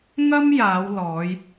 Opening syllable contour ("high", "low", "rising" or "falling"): high